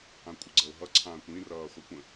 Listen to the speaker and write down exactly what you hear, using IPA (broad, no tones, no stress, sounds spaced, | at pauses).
ã kʷʼ ə ɡ͡ǀ ə ʊ̯ ɦ ʌ ǀʰ ãː kʷ ĩ r ʌː χʷ i kʷ ə̃